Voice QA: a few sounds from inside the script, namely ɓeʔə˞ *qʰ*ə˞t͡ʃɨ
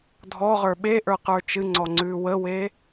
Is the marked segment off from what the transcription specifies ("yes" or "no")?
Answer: yes